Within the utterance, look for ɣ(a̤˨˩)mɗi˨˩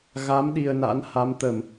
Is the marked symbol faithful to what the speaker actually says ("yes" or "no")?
no